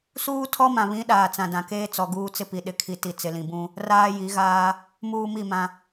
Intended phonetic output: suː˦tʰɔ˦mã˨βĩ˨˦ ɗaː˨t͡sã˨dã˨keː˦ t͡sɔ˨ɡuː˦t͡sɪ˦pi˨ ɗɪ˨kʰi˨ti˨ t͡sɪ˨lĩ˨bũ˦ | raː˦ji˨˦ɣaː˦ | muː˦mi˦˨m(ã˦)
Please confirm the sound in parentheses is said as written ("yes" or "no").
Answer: yes